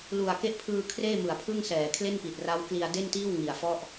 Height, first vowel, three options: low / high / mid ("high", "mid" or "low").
high